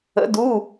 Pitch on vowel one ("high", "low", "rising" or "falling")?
rising